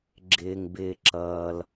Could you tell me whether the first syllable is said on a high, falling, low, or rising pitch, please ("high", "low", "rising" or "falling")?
low